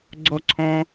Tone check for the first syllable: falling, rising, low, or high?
high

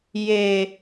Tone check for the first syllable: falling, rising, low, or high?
high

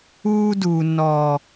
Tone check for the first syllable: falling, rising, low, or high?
high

